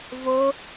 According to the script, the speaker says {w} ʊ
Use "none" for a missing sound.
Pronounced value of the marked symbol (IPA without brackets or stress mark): v